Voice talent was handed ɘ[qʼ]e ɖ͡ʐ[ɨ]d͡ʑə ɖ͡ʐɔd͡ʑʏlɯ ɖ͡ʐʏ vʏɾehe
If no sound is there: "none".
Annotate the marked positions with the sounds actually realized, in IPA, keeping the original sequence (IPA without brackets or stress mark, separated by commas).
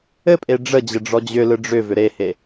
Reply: pʼ, ə